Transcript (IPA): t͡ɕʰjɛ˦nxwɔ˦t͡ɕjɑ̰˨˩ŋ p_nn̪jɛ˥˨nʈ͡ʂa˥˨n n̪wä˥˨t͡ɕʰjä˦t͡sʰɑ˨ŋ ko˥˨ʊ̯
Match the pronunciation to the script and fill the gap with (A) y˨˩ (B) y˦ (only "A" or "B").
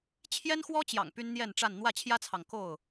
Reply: B